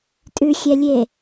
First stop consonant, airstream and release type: ejective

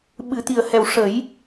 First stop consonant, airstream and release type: implosive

